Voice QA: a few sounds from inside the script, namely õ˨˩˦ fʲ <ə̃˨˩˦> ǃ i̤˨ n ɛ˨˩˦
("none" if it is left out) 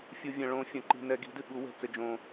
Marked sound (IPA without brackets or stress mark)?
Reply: ɐ̃˨˩˦